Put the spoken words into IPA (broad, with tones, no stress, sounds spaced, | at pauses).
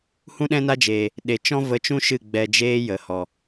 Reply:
h ũ˦ ɗ ɛ̃˦ n a˦ d͡ʒ eː˨ | ɗ e˨ t͡ʃ ɔ̃˦ v ə˧ t͡ʃ ũ˦ ʃ ɨ˦˨ ɡ͡b ɛ˧ d͡ʒ eː˦ j ə˨ h ɔ˨